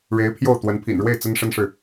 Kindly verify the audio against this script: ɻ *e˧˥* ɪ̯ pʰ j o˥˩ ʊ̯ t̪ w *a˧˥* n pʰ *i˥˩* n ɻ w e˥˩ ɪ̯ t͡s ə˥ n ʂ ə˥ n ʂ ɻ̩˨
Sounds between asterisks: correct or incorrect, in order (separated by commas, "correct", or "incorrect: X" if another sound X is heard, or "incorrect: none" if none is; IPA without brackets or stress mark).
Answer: correct, incorrect: ə˧˥, incorrect: ḭ˨˩